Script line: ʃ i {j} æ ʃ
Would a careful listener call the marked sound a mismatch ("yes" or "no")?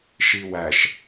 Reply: yes